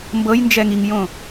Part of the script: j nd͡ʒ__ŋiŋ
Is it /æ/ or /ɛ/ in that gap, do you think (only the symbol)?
ɛ